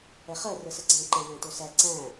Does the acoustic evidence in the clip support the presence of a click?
yes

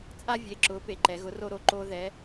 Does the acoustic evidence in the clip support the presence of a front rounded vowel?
no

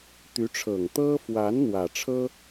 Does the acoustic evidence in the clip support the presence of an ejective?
no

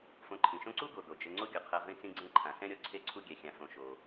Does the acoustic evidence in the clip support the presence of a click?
yes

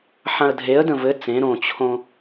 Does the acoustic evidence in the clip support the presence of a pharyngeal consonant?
yes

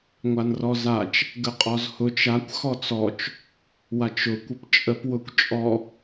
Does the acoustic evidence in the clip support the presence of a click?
no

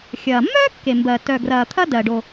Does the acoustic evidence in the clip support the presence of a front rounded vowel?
yes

